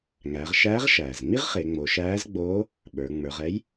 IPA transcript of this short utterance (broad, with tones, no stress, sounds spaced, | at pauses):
ŋ æː˩˧ ʁ ʃ æː˧˥ ʁ ʃ æː˩ z ŋ͡m i˥ ʁ χ e˩˧ ŋ͡m o˩˧ ʃ æː˧˥ z ɡ͡b oː˧˥ | ɓ ə˞˩˧ ŋ͡m ə˞˩˧ ʁ ɛ˧˥ j